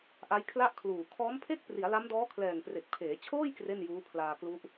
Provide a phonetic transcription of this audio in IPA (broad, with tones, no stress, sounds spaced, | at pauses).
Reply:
ʔ a˦˥ j kʰ l a˥˩ ʔ kʰ l uː˨˩ kʰ ɔː˦˥ m pʰ e˥˩ k̚ p r i˩˦ a̯ l a˦˥ m d ɔː˦˥ kʰ l ɛː˨˩ ŋ p r e˨˩ k̚ pʰ eː˩˦ t͡ɕʰ oː˥˩ j k r e˥˩ n j uː˦˥ pʰ l aː˧ k l u˦˥ ʔ